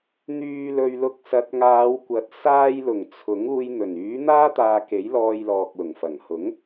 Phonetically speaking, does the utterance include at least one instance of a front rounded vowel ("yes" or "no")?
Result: yes